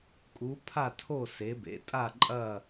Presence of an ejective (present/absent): present